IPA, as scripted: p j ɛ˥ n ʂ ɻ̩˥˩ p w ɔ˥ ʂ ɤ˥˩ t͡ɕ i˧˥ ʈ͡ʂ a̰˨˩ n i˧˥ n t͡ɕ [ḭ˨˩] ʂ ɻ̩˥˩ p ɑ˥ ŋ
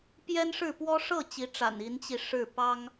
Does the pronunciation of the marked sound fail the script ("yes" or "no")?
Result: yes